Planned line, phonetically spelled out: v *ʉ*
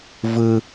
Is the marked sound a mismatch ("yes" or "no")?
yes